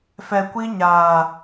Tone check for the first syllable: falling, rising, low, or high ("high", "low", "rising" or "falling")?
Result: low